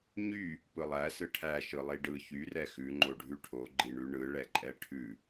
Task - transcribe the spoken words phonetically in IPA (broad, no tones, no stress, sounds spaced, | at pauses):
ɲ y | p ɯ lˠ æ s ɯ ʈʰ æ ʃ ɯ lˠ i ɖ ɯ ç y r ɛ x ʉ ŋ͡ǃ o ɖʱ ʉ ʈʰ o ɡ͡ǃ i ɳ ʉ ɳ ɯ ɭ ɛ ǃʼ ɛ ʈʰ ʉ